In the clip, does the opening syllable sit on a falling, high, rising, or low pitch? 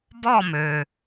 falling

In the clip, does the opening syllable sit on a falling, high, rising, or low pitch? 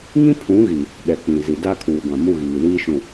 high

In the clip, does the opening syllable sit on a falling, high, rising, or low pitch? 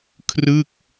falling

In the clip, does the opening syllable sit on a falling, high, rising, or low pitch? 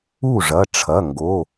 falling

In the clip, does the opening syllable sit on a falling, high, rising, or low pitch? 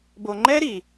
high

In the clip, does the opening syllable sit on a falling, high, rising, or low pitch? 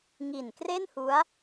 low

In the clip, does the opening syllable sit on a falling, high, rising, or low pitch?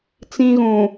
high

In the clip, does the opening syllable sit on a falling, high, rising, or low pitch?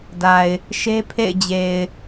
low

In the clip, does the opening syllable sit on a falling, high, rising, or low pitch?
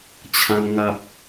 high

